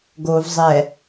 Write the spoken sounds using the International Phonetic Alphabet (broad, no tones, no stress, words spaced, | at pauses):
ɡov zˤɛ